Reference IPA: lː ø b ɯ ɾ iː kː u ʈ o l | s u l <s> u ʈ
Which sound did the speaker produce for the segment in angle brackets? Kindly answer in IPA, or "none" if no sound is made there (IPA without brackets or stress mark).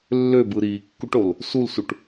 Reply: s